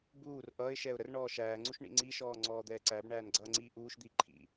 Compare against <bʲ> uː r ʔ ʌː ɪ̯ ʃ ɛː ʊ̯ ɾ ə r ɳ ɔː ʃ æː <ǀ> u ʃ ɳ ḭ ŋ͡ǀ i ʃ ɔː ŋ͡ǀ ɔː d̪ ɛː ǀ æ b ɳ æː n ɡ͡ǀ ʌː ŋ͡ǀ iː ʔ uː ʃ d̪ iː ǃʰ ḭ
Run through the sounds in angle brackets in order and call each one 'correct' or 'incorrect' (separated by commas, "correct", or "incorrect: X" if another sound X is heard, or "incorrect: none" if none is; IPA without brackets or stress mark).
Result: incorrect: b, incorrect: ŋ͡ǀ